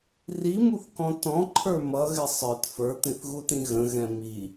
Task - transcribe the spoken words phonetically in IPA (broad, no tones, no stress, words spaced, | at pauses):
rimuθkɔ̃ tɔ̃ǃʰə˞ mʌɣɪ sˤə˞t fə˞t̪ĩθɣutĩ ɣə̃ɣɛ̃ mi